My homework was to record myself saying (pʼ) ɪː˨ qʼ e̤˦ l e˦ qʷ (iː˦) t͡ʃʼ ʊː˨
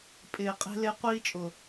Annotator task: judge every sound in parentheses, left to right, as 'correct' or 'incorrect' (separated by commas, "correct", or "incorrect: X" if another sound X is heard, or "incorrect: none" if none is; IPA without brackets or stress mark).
correct, correct